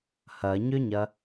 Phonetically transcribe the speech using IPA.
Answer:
h ɐ ɲ ʏ ɲ ɐ

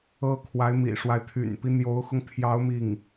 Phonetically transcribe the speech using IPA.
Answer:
ɤ˥ kʰ w a˧˥ ɪ̯ m ḭ˨˩ ʂ w a˦ ɪ̯ t̪ʰ y̰˨˩ n p i˦ n̪ j o˧˥ ʊ̯ x ʊ˧ ŋ t̪ʰ j ɑ˧˥ ʊ̯ m i˥˩ ŋ

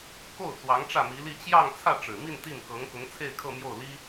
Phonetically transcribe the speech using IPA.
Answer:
k o˥˩ ʊ̯ t͡s w ɑ˧˥ ŋ ʈ͡ʂ ä˥˩ m i˧˥ l i˥˧ t͡ɕ j ɑ˥˧ ŋ t͡sʰ ä˥˩ ʈ͡ʂ ɻ̩˨˩ m i˥˧ n t̪ i˥˩ n k ɤ˧˥ ŋ k ʊ˧˥ ŋ t͡sʰ e˥˧ ɪ̯ kʰ ɤ˥˧ m j o˥˩ ʊ̯ l i˥

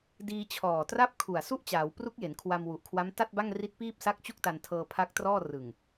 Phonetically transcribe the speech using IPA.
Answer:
d iː˧ t͡ɕʰ ɔː˨˩ t r a˥˩ p̚ kʰ u˨˩ a̯ s u˥˩ ʔ t͡ɕ aː˩˦ w p r u˦˥ k̚ j e˩˦ n kʰ w a˧ m w u˨˩ ʔ kʰ w a˦˥ m t a˥˩ t̚ b a˥˩ ŋ r i˦˥ t̚ p iː˥˩ p̚ s a˦˥ k̚ t͡ɕ u˥˩ k̚ t a˧ n tʰ ɤː˧ pʰ a˦˥ k̚ t r ɔː˥˩ r ɯ˨˩ ŋ

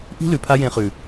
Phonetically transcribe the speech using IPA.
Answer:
ʔ i̤˦ l ʉ˨ pʰ a˦ j ẽ˧ χ ʉ˨

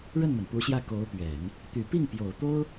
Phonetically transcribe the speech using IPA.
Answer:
ɻ ə˥˩ n m ə˩ n p u˧˥ ɕ j ä˥˩ k o˧˥ ʊ̯ p ɥ ɛ˨˩˦ n | t̪ y˨˩ p i˥˩ ŋ p j o˨˩ ʊ̯ t̪ o˥ ʊ̯

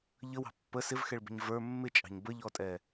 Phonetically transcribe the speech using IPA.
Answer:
ʎ ə w ɑ̤ pː ə s ɪ v x ɛ ɭ b ə̤ ɲ v ə˞ mː ɪ t͡ʃʼ ɑ̤ ɲ b ə ʎ ɔ tʼ ɛ

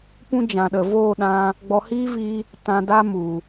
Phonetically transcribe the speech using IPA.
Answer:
p ũ˦ d͡ʒ ã˨ ɗ ə˨ v oː˦˨ ɗ ã˧ | ɡ͡b ɔ˧ h iː˦ v i˦ | t ã˧ d a˦ m u˨

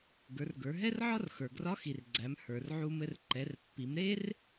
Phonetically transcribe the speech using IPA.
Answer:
ɡ ə˞˩˧ r ɡ ə˞˩˧ ɦ ɛ˥ r ʕ ɒ˥ r x ə˞˩ ɡ r ɒ˧˥ x i˩ r ɡ͡ǀ æ˩˧ m h ə˞˩ r ʕ u˧ m ɘ˧ r ǃ ɛ˩˧ r pː i˩˧ m ɾ e˥ r

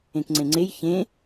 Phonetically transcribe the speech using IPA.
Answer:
ẽ k ŋ͡ǀ ẽ ŋ͡ǀ e j ç ẽ

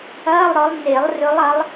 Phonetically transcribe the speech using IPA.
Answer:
ɐː˧˥˧ lˠ ɾ ɔ˨˦ lˠ n e˨˩˦ lˠ r ɵ˨˦ lˠ ɐ˨˦ lˠ

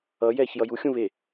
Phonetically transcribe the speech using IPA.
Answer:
ʌ j ɛː ç j ʌ j u xʲ ũ β e

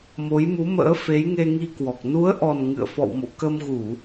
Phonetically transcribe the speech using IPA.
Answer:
m o˨˦ j m u˨˦ m ə̰ː˧˥ f e˨˦ j ŋ e˧ ŋ i˧ k w ɔ˨˩ k̚ n u˨˦ ə̯ ʔ ɔ˨˩ n ŋ ɨ̰˧˨ ə̯ f ɔ̰˧˨ w m o̰˧˨ k ə˧ m ɣ u˧˩˨

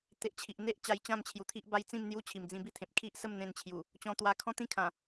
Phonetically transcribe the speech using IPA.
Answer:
t̪ e˨ ʔ t͡ɕʰ i˨ ʔ n̪ e˦ ʔ t͡ɕ a˧ j t͡ɕ ã˥˧ m t͡ɕʰ j u˨˩ t̪ʰ i˦ ʔ b a˦ j t͡s ĩ˥˧ m n̪ j u˦ t͡ɕʰ i˨˩ m d͡z ĩ˧ b i˥˧ t̪ʰ ẽ˨ p̚ kʰ i˦ ʔ s ə˥˧ m n̪ ẽ˧ n t͡ɕʰ j u˨˩ | t͡ɕ ɔ̃˧ t̪ w a˧ kʰ ɔ̃˦ t̪ ĩ˦ kʰ ã˨˩

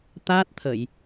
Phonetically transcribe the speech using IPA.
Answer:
t̪ aː˦˥ t̚ t̪ʰ ə˨˩˨ j

